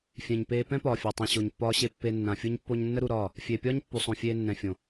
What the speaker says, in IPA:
fʲ ɛ̃˨ ɲ p eː˧ p ɛ̃˦ p ɒː˨ fʲ a˨ tˤ ɛ̃˨ ɕ o˨ ɲ pː ɒː˧ ɕ e˧ pː e˧ nː ã˨ fʲ u˦ ɲ pː o˦ ɲ nː ə˦ ɾ u˧ ɾ ɒː˦˨ | fʲ eː˨ pʲ ɒː˦ ɲ pː u˨ sˤ õ˨ fʲ eː˧ nː ɛ̃˨ fʲ õ˨

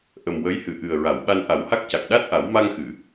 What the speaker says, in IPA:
ʔ ə˨˩ m w ə˧˥ j h ɨ˨˩˨ ʔ ɨ˨˩ ə̯ ɹ a˨˩˨ w ɓ a˧ n ʔ a˨˩˦ w h a˦˥ k̚ c a˨˩ k̚ ɗ a˦˥ t̚ ʔ a˨˩˦ w m a˧ ŋ x ɨ˨˩˨

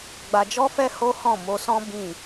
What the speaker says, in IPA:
ɡ͡b a˧ d͡ʒ ɔ˦ f ɛ˦ h o˦ h ɔ̃˦˨ m o˧ s ɔ̃˦ b ĩ˦˨

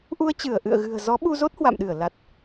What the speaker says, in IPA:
ʔ u˧ ə̯ t͡ɕ ɨ˧˩ ə̯ ʔ ɨ̰˧˨ ə̯ ɣ ɨ̤˨˩ ə̯ z ɔ˨˦ ɓ u˧ z o˦˥ t̚ h w a̰˧˨ m ɗ ɨ˧˩ ə̯ l a˨˩ t̚

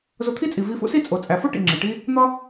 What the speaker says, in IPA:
z o˧ t̪ʰ i˥ t͡sʼ i˩ v i˧ f ṵ˥ s i˥ t͡sʼ o˩ t͡sʼ æ˩ f o˥ ʈ ḭ˩ ŋ͡ǁ e˩ ʈ i˥ | n̪ ɒ˥

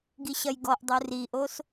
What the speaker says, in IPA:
ɡ i ɕ ɐ j ɡ ɔ ʔ dˤ u r i ʔ o s

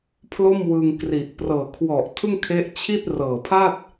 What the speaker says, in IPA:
pʰ l o˥˩ m w ɯ˧ ŋ k r i˨˩ ʔ p r ɤː˨˩ kʰ w ɔ˨˩ ʔ tʰ ɯ˥˩ ŋ kʰ e˦˥ ʔ t͡ɕʰ i˥˩ t̚ r ɤː˨˩ pʰ a˥˩ t̚

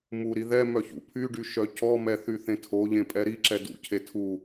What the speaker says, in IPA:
m u ɾ i ð ɛ m œ ç ṵ pʰ y ɖ y ʃ œ c ɔ m ɛ θ y θ ẽ tʰ o ʎ ẽ pʼ ɛ ɾ i ǁ ɛ d ṵ cʰ e tʰ u

